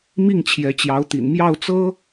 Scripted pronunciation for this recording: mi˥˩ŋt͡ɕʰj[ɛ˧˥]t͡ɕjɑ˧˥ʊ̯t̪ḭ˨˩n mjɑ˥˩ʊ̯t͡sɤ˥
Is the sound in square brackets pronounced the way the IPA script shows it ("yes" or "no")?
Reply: yes